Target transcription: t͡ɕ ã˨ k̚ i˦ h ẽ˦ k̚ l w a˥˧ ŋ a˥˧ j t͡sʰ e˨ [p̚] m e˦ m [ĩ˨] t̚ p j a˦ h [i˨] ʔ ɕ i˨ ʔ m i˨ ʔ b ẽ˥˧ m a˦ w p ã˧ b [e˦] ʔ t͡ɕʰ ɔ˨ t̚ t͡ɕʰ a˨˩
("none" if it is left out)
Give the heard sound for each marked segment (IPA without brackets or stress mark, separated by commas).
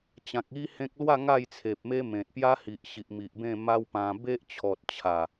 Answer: p̚, ẽ˨, i˨, e˦